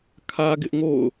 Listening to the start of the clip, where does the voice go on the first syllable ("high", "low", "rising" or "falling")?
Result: high